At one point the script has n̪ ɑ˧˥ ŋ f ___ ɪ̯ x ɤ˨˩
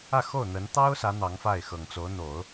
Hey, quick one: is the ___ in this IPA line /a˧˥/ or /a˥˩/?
a˥˩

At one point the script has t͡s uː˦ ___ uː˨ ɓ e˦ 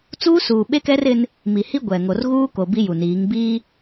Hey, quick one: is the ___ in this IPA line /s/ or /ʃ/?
s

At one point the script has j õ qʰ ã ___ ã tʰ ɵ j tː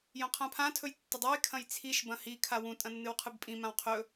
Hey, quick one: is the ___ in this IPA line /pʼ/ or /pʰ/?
pʰ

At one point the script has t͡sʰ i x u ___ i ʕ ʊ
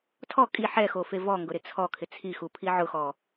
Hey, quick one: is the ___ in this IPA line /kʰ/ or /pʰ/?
pʰ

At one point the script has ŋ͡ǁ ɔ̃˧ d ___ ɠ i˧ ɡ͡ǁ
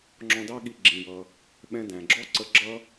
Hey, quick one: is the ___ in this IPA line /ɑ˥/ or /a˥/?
ɑ˥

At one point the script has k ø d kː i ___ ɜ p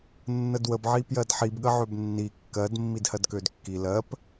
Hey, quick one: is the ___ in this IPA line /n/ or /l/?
l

